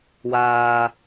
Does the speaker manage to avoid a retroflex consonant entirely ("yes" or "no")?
yes